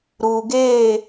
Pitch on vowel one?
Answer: low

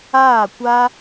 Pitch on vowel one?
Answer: falling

